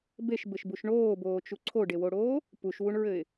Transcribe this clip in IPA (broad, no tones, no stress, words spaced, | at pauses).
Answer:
beʃbɘʃbuʃ ɳoːboːt͡ʃu ǀʰoɖewoɽoː | puʃwuɳɹɘɪ̯